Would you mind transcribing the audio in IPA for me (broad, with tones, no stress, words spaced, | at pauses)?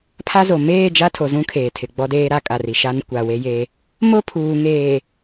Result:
pʰa˦zo˨ meː˦˨d͡ʒa˦tʰo˨zũ˦ kʰeː˨tʰɪ˨ɡ͡bɔ˦ deː˦ɾa˦ kʼa˨ri˨ ʃa˦n kʷa˨we˦je˦ | mo˦pʰuː˨ŋeː˨